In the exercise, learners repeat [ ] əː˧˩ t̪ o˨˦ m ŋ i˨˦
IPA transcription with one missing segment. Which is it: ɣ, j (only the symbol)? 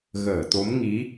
ɣ